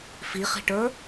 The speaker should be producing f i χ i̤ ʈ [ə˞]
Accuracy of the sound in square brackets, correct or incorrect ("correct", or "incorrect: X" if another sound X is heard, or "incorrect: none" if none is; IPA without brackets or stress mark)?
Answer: correct